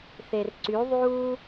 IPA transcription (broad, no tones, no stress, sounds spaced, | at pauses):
θ e r ǀ y ðˤ uː